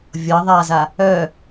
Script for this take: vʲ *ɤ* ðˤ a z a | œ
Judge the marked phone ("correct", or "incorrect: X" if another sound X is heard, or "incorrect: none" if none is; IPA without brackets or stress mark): correct